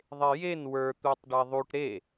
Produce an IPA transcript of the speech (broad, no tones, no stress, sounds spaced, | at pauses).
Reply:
ðˤ e j e n w ə˞ t̪ u tˤ ɖ e ðˤ u ʈ ɾ e